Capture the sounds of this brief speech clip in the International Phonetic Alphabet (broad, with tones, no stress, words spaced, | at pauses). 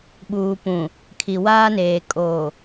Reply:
ɓuː˨pũ˨ | kʰi˨waː˦neː˨ kʼoː˨